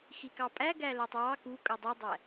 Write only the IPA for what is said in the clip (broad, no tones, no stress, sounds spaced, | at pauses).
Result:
x i k ɑ pʼ æ ɡ æ l æ tˤ w ɑ k u kʼ ɵ dˤ i dˤ æ